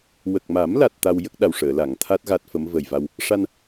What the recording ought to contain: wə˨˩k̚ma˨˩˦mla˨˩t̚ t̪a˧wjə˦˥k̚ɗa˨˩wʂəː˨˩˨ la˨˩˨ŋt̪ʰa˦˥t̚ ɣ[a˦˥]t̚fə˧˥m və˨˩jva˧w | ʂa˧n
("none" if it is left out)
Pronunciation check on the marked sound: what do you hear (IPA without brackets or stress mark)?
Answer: a˦˥